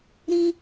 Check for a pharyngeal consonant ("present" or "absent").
absent